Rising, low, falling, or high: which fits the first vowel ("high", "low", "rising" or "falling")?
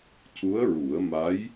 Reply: rising